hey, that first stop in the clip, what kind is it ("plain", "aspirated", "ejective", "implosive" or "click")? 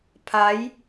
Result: aspirated